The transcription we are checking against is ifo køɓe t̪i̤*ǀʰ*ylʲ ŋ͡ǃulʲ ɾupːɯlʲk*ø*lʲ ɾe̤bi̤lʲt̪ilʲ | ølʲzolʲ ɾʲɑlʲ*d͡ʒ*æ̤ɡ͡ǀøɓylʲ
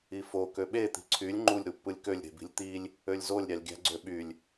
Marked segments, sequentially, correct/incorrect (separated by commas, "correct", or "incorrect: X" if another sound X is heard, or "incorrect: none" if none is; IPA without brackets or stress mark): correct, correct, incorrect: ɡʲ